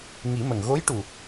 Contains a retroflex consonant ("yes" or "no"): yes